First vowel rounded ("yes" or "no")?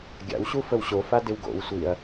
no